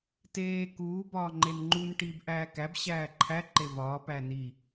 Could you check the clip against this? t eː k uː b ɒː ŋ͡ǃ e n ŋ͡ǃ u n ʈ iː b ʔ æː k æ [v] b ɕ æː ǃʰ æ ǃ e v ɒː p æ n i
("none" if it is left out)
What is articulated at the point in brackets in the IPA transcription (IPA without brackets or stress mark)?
none